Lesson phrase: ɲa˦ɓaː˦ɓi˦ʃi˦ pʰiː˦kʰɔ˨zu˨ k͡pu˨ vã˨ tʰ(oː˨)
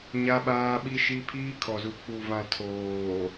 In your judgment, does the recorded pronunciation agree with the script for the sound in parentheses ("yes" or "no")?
yes